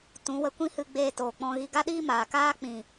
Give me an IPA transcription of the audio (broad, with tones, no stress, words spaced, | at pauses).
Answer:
tũ˨˦wə˧kʷĩ˦hɨ˧ ɡ͡beː˧toː˨k͡pɔ̃˧ɣi˧ ɡa˧ɗiː˧ maː˨kaː˦ k͡pĩ˨